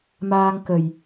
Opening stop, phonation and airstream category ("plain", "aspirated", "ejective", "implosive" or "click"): plain